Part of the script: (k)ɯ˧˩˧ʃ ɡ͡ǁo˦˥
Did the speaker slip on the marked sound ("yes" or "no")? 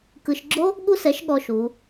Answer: no